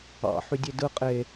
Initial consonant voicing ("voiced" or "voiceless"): voiceless